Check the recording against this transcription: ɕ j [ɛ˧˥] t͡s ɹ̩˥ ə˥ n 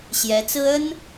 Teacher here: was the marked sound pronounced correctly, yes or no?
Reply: yes